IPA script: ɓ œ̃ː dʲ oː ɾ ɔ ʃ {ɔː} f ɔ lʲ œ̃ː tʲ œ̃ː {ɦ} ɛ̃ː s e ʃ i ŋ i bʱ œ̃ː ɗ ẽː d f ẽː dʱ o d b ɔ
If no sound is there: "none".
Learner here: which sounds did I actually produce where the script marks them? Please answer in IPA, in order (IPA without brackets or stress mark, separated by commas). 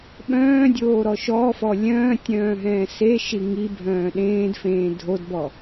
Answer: ɔː, ɦ